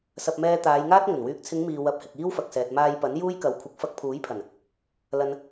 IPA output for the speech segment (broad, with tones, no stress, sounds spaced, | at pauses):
s ɐ˧ p̚ m ɛː˧ t̪ aː˨˧ j ŋ aː˥ t̚ ŋ ɵ˨˩ n w yː˨ k̚ t͡sʰ ɪ˨˧ ŋ m iː˨ w ɐ˨˥ p̚ h ɪ˨ k̚ iː˥ w f ɐ˨ k̚ s ɛː˨ t̚ m aː˧ j p ɐ˨˥ n j uː˥ j k ɐ˨˥ w kʷʰ ɪ˨˥ k̚ f ɐ˧ k̚ pʰ uː˨˥ j pʰ ɐ˨˩ n | l ɐ˨ n